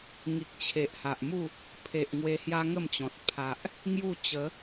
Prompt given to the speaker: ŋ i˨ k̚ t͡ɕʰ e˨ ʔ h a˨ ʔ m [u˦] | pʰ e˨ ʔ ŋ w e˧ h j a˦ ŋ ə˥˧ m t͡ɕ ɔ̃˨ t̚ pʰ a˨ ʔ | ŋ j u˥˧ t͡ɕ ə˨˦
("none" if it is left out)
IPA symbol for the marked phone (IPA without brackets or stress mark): u˥˧